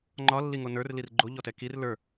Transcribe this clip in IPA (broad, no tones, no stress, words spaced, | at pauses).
ŋ͡ǃɒlːiŋo nə˞rlir ɡ͡ǃoʎɔtɛ kir lə˞